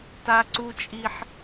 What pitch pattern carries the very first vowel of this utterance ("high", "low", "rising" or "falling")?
high